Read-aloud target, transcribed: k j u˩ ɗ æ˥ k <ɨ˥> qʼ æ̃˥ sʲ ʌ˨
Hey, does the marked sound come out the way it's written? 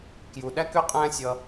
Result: no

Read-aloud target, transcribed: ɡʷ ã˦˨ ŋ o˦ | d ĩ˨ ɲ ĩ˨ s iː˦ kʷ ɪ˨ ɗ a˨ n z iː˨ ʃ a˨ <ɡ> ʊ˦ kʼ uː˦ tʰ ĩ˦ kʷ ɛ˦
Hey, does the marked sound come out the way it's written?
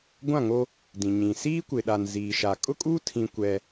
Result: no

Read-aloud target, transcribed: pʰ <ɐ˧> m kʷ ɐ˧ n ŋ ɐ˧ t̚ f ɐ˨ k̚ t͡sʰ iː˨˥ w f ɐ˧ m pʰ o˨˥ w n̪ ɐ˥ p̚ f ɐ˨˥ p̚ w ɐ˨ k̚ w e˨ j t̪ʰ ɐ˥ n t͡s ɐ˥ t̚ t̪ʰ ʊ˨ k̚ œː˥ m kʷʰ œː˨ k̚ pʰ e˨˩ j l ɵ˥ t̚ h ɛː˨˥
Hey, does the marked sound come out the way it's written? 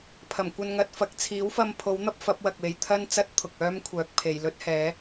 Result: no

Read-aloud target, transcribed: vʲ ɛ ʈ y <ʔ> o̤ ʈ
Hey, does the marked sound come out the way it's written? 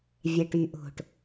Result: yes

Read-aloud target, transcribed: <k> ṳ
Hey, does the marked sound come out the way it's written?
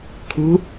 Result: no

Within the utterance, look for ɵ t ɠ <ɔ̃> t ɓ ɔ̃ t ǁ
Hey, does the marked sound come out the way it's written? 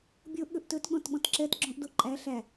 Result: yes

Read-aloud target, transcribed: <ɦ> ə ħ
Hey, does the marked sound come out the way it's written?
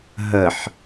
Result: yes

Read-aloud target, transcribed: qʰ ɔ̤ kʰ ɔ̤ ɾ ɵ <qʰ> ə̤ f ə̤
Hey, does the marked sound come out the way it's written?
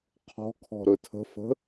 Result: no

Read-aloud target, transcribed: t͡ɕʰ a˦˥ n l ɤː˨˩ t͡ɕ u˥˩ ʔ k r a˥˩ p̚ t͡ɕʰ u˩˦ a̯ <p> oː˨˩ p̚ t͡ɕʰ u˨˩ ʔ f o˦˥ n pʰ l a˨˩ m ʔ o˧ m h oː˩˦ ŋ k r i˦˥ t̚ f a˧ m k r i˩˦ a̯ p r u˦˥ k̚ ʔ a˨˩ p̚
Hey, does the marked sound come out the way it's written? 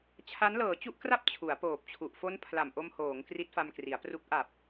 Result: yes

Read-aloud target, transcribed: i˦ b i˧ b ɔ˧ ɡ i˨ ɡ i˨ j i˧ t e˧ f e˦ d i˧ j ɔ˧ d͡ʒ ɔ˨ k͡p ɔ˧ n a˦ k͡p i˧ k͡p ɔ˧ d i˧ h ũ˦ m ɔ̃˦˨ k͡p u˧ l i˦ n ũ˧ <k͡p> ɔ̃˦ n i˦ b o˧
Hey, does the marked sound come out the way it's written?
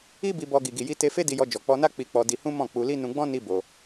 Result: no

